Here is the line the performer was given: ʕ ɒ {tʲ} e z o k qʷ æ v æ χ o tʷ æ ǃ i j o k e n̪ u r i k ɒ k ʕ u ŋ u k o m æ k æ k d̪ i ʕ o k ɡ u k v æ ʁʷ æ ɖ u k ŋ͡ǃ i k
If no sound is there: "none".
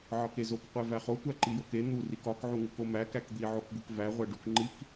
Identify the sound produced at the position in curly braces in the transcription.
k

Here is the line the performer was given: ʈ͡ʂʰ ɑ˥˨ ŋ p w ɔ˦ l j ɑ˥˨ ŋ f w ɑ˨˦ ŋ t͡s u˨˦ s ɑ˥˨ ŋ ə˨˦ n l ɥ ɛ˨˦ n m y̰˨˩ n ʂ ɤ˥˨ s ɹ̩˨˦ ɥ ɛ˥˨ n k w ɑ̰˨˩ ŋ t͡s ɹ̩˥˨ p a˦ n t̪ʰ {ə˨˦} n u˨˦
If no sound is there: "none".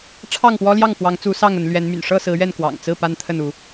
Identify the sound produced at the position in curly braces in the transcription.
ə˥˨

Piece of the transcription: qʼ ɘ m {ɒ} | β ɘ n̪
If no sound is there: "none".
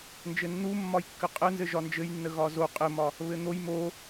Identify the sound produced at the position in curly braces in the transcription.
ɒ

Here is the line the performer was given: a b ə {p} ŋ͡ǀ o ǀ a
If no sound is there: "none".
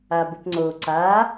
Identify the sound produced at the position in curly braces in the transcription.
p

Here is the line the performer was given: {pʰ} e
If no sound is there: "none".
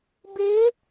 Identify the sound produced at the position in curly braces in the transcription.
b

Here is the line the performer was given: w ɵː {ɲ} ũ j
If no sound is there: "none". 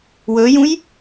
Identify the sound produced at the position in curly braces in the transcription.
j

